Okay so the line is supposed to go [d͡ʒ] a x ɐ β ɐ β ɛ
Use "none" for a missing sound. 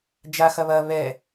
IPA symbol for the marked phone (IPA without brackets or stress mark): d͡ʒ